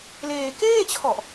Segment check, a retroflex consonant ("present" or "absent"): absent